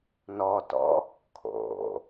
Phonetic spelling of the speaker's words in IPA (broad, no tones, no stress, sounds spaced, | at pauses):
n ɔ t ɔ̰ | kʰ o̰